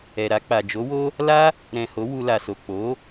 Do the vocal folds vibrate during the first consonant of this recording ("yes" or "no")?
yes